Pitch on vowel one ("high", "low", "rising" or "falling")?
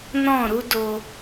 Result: falling